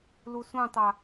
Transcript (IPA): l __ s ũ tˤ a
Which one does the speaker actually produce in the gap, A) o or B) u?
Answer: B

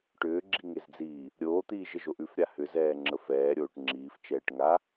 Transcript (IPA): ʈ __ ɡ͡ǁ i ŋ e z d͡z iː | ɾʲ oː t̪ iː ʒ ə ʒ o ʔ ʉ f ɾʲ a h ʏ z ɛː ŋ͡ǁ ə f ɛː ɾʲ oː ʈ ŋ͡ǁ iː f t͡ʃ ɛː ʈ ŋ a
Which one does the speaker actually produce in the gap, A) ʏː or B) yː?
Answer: A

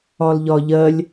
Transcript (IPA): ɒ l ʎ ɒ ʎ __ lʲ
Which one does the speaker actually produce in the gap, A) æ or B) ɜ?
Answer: B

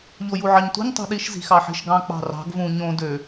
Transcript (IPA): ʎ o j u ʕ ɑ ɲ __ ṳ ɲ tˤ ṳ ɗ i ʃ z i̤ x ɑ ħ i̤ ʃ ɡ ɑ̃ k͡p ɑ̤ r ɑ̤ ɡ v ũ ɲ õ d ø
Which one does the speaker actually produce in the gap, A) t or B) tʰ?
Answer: A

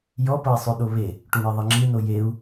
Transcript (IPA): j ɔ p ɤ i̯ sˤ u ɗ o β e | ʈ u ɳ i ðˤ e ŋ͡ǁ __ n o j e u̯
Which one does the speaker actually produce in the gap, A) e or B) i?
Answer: B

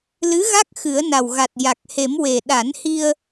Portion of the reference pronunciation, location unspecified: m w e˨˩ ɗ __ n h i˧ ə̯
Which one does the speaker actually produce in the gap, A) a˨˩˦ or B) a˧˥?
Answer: A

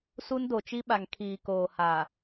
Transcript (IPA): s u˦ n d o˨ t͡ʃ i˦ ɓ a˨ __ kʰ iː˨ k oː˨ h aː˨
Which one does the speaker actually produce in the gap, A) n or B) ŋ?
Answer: B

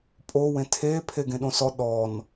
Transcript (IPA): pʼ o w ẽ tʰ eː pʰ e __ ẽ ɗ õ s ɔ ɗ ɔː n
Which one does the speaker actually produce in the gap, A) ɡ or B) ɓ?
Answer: A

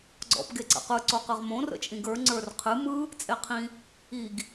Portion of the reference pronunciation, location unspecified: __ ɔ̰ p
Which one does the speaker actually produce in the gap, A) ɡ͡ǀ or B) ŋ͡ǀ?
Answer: A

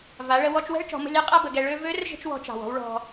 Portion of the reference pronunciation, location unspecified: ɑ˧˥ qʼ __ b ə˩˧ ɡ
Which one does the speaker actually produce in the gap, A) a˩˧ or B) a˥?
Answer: B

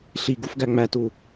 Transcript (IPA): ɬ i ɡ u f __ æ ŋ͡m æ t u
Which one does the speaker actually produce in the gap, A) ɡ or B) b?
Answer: A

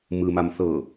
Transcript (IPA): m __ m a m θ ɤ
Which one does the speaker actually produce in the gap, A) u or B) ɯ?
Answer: B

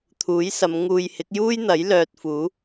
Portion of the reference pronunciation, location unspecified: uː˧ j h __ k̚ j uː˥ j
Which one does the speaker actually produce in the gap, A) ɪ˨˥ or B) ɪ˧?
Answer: A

